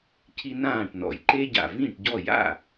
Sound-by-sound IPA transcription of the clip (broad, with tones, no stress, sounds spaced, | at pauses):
cʰ i˦ n ãː˥˩ ʈ n ɔ̰˨˩ j ǃ e˦ ɟ a̰˨˩ v ĩ˥˩ ʈ ɟ ɔ˥˩ j a̰˥˩